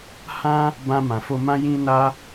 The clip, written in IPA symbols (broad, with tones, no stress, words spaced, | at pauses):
hã˦ | bã˧mã˨fo˧mã˦ jĩ˦na˦